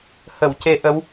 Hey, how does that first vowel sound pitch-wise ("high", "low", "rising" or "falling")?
low